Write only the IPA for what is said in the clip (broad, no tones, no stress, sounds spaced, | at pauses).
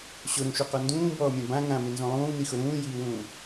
ɕ ʊ ɾ ũ ʃ u q ɔ n d ũː b ɔː mʲ ã b ã ŋ ã m ɪ n z ũ lˠ ũː n i x ʊ ɾ ũː j iː w ũː